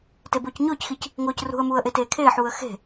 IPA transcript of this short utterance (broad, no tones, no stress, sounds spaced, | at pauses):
t e b ʊː c ɲ ʊː c x i c | ŋ ʊː c r ṳ ə̯ m uː ə̯ ʔ e t eː kʰ eː ħ uː ə̯ x e̤